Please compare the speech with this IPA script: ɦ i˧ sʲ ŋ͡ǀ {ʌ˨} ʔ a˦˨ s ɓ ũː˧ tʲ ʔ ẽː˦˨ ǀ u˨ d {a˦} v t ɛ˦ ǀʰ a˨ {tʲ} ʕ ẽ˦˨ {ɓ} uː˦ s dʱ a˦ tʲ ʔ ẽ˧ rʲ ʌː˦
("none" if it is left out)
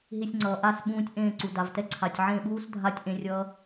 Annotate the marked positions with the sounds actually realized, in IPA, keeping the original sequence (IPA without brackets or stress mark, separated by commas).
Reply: ʌː˨, a˨, tʲ, ɓ